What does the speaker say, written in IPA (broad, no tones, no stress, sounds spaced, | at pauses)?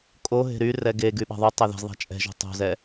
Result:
kʼ o ɦ e̤ ɾ y r ɛ ɡ e ɡ y ɓ a̤ ðˤ u tˤ e ð ɛ̤ z ðˤ a̤ t͡ʃʼ ɛ̤ ʒ o̤ tˤ o̤ z ɛ